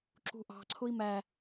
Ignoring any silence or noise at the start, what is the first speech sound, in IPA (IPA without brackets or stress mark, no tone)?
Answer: ǁ